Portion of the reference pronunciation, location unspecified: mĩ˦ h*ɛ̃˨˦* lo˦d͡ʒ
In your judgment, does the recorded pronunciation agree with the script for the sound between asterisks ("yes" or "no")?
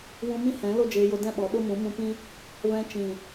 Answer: yes